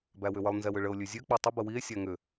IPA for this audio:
b æ w ʏ w ə lˠ n z ɛ w ʏ ɭ ə o̯ lʲ ʉ zʲ ø k͡p o tˤ ə b ə w i e̯ sʲ æ ŋ ʏ

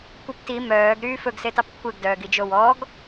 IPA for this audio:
kʷ ɛ p t i m œː ɡ ɾ yː f ɵ ɡ s e t ɑ p kʷʰ e ɡ d œː ɡ i d͡ʒ o w ɔ ɡ

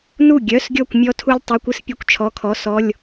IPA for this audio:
n u˥˩ ɡʲ œ˩˧˩ s ɡʲ ɔ˧˩ kʷ mʲ ɔ˧ tʰ u˧ lʲ tˤ u˩˧˩ kʷ ɨ˧ s pʲ œ˧ kʷ t͡ʃʰ ɔ˩˧˩ kʰ ɔ˩˧˩ s ɔ˩˧˩ lʲ

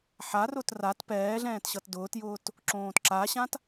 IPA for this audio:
ħ a r ʊ t r a t p ɛː ɮ ɛ̃ː t ɕ ʌ t d ʊː t j ʊː t | ǁ õː t ǁ a ɕ ã t

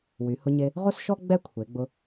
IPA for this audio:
w y˩˧ h ʊ˧ ɲ e˧ | ʁ o˥ s ʃ ɔ˥ ɡ͡b ɛ˥ kʷʰ e˩˧ ɡ͡b ʊ˧

